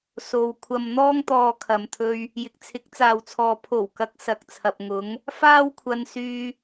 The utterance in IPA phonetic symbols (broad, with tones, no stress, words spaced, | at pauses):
so˨w kʷʰɐ˨mn̪ɔː˧ŋt̪ɔː˨ kʰɐ˨mt̪ʰɵ˧ɥ | jɪ˨k̚t͡sʰɪ˨˥k̚t͡saː˨wt͡sʰɔː˨ pʰo˨˩wkɐ˨˥k̚ sɐ˨k̚t͡sʰɐ˨p̚ ŋʊ˨˧ŋ | faː˥wkʷʰɐ˧nsyː˧